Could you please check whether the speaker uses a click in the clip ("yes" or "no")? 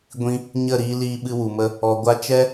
no